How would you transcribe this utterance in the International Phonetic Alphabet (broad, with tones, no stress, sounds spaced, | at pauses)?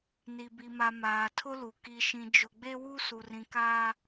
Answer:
n i˨ b i˨ m a˨ m aː˨ tʰ ʊ˦ l u˨ k i˨ ʃ ĩ˨ d͡ʒ ʊ˨ ɡ͡b e˦ w u˦ s u˨ r ĩ˨ k aː˦